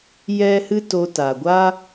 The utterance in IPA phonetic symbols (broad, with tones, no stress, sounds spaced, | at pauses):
j ɛ˦ h ɨ˦ t o˧ t a˨ ɡʷ aː˦